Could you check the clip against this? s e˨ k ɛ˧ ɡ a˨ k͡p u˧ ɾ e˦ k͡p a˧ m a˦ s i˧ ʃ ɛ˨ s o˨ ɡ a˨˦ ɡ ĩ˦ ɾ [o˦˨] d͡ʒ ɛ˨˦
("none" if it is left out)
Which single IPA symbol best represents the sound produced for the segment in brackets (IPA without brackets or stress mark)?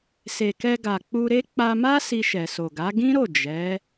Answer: o˦˨